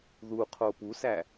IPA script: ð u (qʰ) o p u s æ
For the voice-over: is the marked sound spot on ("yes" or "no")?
yes